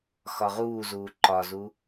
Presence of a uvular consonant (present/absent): present